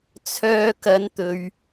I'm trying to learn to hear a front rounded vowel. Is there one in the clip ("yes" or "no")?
yes